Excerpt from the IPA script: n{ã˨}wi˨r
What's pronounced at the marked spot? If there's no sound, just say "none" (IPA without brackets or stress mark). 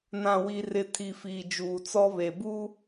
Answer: ã˨